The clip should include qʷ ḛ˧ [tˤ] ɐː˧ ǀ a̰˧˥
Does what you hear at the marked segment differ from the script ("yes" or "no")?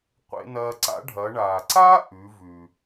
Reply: yes